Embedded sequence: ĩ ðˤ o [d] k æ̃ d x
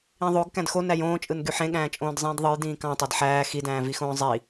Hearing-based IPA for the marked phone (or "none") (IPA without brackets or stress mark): ɡ